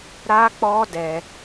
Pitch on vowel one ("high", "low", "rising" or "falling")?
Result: high